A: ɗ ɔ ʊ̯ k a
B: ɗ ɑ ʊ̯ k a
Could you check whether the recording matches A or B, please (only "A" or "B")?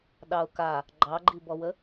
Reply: B